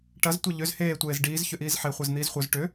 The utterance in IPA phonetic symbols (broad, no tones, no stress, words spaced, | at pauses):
ʈɐz tʷɐʎʏz heː tʷeːzɖiːz çʏʔiːzħe χʷezn̪iːzχʷœz ʈʏ